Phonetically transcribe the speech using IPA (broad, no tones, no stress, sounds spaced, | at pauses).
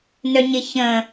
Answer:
n œ ɲ ɪ ç ə̃